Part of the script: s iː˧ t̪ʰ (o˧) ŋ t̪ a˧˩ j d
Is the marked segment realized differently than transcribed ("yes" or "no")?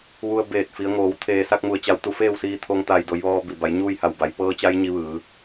no